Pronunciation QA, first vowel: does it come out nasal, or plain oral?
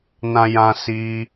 nasal